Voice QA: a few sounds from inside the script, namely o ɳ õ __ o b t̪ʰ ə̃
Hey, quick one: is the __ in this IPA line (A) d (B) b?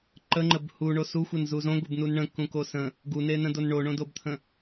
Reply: A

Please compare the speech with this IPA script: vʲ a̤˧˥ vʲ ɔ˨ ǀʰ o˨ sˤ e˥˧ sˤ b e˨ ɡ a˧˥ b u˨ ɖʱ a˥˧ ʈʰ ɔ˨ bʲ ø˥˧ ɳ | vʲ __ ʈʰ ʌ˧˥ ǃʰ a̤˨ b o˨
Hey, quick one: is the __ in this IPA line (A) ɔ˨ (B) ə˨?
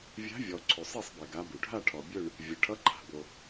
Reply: B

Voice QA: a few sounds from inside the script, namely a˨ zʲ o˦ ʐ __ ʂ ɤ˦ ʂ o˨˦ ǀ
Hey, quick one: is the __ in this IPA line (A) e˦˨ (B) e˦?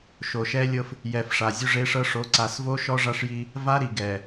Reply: B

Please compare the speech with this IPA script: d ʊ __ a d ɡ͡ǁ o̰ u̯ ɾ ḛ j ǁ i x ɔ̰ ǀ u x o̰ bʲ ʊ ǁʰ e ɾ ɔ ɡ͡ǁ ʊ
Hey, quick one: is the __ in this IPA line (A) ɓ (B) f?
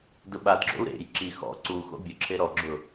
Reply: A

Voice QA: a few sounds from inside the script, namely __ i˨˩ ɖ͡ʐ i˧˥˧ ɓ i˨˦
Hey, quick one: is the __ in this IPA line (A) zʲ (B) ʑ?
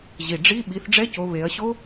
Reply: B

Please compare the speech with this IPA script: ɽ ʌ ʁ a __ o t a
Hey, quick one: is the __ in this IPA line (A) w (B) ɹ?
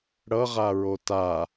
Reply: B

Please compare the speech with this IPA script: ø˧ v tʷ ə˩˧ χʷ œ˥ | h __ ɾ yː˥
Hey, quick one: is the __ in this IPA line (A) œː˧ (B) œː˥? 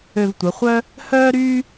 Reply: B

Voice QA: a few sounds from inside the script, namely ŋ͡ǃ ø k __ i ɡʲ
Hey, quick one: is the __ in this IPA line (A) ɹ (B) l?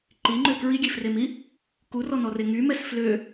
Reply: A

